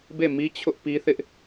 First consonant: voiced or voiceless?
voiced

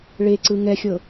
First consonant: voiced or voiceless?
voiced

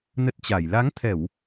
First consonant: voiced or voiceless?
voiced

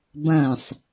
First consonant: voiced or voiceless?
voiced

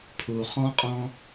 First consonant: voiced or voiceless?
voiceless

